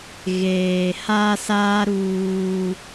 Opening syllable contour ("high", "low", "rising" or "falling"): low